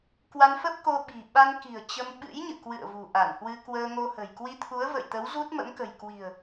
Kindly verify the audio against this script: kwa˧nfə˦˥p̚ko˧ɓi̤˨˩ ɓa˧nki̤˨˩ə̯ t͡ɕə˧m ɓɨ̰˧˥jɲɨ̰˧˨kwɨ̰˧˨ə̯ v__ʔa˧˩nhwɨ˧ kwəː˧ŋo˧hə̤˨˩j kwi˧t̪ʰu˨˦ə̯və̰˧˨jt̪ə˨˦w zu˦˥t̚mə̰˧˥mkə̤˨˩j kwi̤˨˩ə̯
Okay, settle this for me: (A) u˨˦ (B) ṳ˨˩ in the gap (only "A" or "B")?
B